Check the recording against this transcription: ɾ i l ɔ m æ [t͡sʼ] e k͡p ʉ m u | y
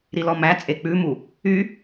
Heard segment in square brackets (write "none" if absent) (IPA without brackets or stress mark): t͡sʼ